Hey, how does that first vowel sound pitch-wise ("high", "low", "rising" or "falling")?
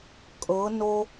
rising